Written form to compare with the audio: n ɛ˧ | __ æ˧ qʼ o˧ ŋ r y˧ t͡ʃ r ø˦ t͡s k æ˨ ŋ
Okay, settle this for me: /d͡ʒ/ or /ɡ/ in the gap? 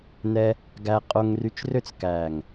ɡ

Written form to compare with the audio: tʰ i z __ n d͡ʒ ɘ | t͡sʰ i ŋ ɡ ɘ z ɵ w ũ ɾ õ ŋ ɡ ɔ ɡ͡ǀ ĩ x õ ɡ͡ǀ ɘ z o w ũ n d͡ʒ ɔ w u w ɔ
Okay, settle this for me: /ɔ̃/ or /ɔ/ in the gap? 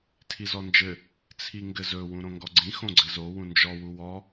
ɔ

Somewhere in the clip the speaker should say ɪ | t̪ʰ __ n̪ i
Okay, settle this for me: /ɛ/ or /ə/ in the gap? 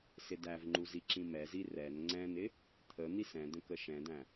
ə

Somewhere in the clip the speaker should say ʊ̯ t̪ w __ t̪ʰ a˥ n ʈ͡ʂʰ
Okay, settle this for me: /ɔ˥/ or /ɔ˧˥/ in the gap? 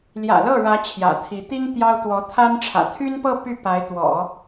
ɔ˧˥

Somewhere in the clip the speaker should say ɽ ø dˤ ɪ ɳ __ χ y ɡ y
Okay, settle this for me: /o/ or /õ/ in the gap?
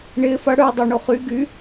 o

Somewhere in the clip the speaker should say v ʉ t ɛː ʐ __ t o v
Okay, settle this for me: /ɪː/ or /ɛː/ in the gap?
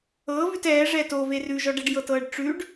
ɛː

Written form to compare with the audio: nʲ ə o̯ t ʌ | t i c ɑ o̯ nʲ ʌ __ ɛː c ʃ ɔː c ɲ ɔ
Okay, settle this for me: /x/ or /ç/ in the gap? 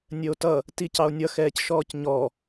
x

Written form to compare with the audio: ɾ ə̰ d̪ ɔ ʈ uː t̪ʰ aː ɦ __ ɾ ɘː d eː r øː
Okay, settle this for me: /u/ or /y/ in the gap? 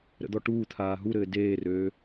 u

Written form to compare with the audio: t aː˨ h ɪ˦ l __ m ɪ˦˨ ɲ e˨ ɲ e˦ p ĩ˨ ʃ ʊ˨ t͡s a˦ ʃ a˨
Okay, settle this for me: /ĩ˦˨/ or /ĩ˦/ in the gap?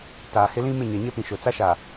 ĩ˦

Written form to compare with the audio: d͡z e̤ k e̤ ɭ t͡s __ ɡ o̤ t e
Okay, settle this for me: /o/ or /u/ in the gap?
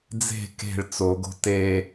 o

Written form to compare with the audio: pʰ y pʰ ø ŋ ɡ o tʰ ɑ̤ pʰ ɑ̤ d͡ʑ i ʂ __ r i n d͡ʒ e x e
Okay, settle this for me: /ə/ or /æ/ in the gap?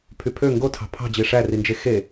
æ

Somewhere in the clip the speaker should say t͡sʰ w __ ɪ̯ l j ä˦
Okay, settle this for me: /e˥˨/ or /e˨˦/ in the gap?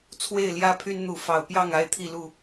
e˥˨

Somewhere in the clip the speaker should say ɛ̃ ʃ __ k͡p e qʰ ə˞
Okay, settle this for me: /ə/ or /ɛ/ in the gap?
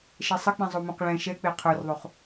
ɛ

